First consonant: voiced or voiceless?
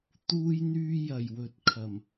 voiceless